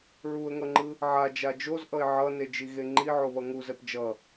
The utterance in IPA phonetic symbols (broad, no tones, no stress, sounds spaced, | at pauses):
ɹ u ə̯ ŋ ʌ ŋ͡ǃ ɯ | ʕ a d͡ʒ a d͡ʒ o z ʔ ʌ ɪ̯ ʕ ʌ n e d͡ʒ i ɣ e ŋ͡ǃ i ʕ o β ʌ ŋ u z ɛ p d͡ʒ ʌ